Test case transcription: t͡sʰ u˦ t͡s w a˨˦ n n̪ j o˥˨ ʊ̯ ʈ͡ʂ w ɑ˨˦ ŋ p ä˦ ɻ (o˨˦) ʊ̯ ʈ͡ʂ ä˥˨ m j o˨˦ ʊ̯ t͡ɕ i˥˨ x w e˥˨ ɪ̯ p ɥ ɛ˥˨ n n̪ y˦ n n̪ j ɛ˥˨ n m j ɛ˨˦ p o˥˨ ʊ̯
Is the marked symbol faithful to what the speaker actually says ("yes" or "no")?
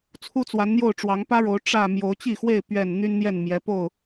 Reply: yes